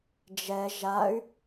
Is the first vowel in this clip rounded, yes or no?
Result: no